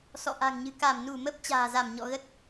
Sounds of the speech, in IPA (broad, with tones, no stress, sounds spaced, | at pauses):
s ɔ̰˧˨ ʔ a̤˨˩ ŋ ɲ ɨ̤˨˩ k a˧˩ m n u˧˩ m ə˦˥ p̚ t͡ɕ a̤ː˨˩ z a˧˩ m ɲ ɔ̰˧˨ ɣ ə˦˥ t̚